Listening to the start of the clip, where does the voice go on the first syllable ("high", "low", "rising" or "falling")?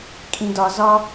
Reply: high